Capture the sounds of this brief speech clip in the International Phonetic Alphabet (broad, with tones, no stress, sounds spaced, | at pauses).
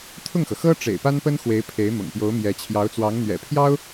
t̪ʰ ʊ˥˩ ŋ x ɤ˩ x ɤ˥ ʈ͡ʂ ḛ˨˩ ɪ̯ p a˥ n p ə˥ n x w e˧˥ ɪ̯ pʰ e˧˥ ɪ̯ m ʊ̰˨˩ ŋ p j o˧˥ ʊ̯ m j ɛ˧˥ t͡ɕʰ j ɑ˧˥ ʊ̯ t͡s w ɑ˧˥ ŋ n̪ ɥ ɛ̰˨˩ pʰ j ɑ˥ ʊ̯